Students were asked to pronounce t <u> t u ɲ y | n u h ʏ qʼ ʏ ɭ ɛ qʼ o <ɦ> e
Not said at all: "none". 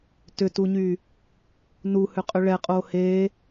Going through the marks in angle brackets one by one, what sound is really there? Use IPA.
ʏ, h

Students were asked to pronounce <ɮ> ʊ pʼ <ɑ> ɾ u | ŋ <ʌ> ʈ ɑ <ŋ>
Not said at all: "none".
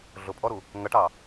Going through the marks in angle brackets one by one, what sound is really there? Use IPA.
ɮ, ɔ, ʌ, none

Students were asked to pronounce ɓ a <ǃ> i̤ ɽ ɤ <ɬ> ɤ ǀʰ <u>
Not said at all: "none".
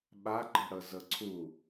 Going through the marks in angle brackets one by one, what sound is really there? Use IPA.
ǃ, z, u

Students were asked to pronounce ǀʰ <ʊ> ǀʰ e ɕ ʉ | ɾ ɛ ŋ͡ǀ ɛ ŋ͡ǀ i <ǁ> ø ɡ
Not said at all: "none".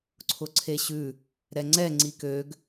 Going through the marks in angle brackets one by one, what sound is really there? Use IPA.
ʊ, k

